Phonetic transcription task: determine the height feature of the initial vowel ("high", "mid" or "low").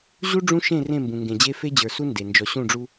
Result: high